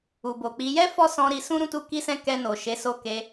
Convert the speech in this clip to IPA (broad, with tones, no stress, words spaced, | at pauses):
u˨bo˨k͡pi˨˦ jɛ˦ fɔ˦sɔ̃˧ɾi˧sũ˦ ɾũ˦˨tu˧ki˧sɛ̃˧ kɛ˧no˨ ʃe˨˦so˦˨ke˧